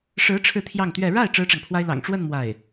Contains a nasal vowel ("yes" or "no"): no